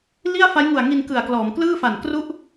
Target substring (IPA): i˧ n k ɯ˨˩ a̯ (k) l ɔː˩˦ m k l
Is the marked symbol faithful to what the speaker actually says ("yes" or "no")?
yes